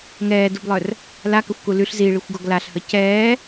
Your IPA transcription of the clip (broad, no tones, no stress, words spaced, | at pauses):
ŋɛːdublˠœr | lakəxʷku lyɬ ziɭixʷɡɔɡ laɬhə cɛː